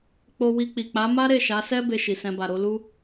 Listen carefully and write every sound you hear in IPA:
k͡p o˧ w i˧ k͡p i˨ k͡p a˨˦ m a˦ ɾ e˦˨ ʃ a˨˦ s ɛ˦ b e˧ ʃ i˨ s ɛ̃˧ b a˨ ɾ o˨˦ l u˦

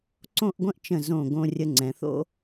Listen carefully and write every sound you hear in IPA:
ǀ õ˥˧ ʔ ɡʷ ə̃˥ ʔ t͡ʃ ə̃˧˩ z õ˧˩ ɡ õ˧ rʲ ə˧ ŋ͡ǀ ɛ̃˩˧ θ o̰˥

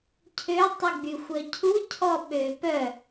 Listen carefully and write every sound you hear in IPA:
cʰ ø tˤ y ɡ͡b y xʷ œ cʰ u cʰ ɔ ɓ ø p œ

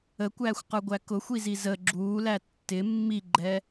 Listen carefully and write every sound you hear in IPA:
ə kʷ æː xʷ q ə˞ ɡʷ æ k ʊ xʷ i z i z ə ɡ͡ǁ uː l æ tː ɪ mː i ɡ͡ǃ ɛ

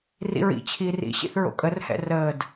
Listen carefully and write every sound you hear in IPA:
r ḭ ɹ ḭ t͡ɕʰ iː r ḭ ɕ ḭ θ ɹ o̰ kʼ ə r h ɛ̰ r əː d

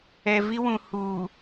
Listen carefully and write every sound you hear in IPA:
ɛ˨ v i˦ w ũ˨ h uː˨

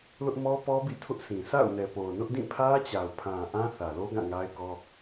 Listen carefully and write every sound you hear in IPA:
l ʊ˦ ʔ m ɔ˦ p ɔ˦ b ḭ˦˨ tʰ ʊ˦ ʔ sʰ ĩ˨ sʰ a̰˦˨ ʊ̯ n ɛ˨ p o˨ ʊ̯ n ʊ˦ ʔ d ĩ˦˨ pʰ ä˦ t͡ɕ a˨ ʊ̯ pʰ ã˨ ʔ ã˦ θ ä˨ l o˦ ɡ ã˦˨ ŋ a˦ ɪ̯ k ɔ˦

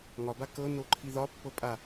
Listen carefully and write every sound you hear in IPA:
ŋ ɒ b a k ɤ n o ǃʰ i ð ɒ pː ɤ pʼ a

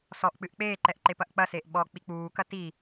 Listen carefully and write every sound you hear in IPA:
s ɔ ʔ k͡p ɨ ʔ k͡p eː ǃ ɛ ʔ ǃ e p ɐ ʔ k͡p ɐ s eː ʔ ɓ ɔ k͡p i k͡p uː k ɐ t i

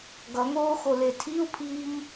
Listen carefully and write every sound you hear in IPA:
ɡ ʌ ŋ oː x o l e tʰ i u̯ pʰ iː ŋ

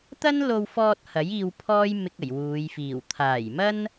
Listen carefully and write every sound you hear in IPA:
t̪ ɐ˥ n l o˧ w f ɔː˧ t̚ h ɐ˨˥ j iː˧ w pʰ ɔː˥ j m ɪ˧ k̚ ɐ˨˩ j w uː˨˧ j f iː˨˩ w t̪ʰ aː˨˩ j m ɐ˥ n

